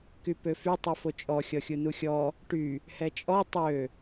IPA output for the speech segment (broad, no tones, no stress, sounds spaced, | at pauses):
k y p ø f y tˤ u f o t͡ʃʼ ɔ xʲ ɔ xʲ u n u xʲ ɔ | ʈ y | h ɛ t͡ʃʼ ɔ tˤ ø